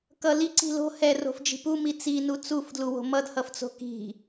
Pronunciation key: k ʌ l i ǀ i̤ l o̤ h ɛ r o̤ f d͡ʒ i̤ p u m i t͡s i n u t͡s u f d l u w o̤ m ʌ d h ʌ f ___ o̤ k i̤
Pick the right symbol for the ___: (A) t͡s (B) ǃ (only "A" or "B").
A